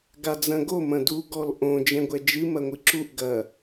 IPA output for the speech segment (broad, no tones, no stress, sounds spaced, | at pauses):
ɡ a d͡z ɐ̃ ɡ o m ɐ̃ d u ɡ ɔ l ʔ õ d͡ʒ ɛ̃ ɡʷ ɛ d͡ʒ ɨ m ɐ ŋʷ ɨ ǁ u ʔ ɡ ɐ